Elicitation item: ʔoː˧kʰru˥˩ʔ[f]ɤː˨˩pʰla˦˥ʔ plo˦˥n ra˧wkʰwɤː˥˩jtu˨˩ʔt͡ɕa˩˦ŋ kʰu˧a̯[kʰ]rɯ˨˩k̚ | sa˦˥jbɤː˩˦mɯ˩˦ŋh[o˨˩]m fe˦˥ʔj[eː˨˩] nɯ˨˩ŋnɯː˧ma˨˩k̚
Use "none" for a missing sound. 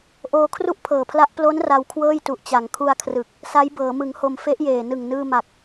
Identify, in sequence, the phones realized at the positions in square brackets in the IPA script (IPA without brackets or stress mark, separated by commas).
pʰ, kʰ, o˨˩, eː˨˩